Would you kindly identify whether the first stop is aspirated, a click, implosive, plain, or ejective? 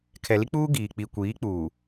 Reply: aspirated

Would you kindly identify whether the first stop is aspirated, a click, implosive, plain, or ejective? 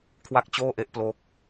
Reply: aspirated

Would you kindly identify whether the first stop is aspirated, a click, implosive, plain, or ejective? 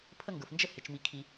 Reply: aspirated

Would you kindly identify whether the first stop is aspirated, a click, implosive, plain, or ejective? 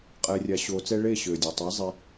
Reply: ejective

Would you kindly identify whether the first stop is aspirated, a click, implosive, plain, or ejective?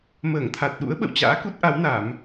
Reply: aspirated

